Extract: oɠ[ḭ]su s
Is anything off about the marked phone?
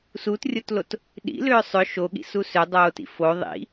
no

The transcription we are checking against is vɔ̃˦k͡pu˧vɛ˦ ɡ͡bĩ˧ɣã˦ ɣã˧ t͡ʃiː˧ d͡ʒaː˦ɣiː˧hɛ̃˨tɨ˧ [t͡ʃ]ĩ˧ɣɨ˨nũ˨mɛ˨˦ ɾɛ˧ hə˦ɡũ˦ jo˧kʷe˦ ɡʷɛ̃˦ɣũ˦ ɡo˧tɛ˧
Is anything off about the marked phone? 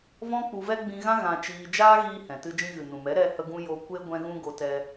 yes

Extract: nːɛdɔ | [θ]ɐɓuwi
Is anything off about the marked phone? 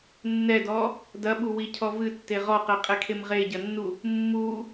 yes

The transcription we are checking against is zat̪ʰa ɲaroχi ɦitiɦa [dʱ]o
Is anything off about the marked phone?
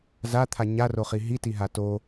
yes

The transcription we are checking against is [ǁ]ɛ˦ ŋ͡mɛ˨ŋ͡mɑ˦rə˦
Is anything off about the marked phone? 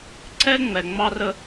yes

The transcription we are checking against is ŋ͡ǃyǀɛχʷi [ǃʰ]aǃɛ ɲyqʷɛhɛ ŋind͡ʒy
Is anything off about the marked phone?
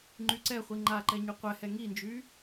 yes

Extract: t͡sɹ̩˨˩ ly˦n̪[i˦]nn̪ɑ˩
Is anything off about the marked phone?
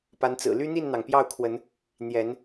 yes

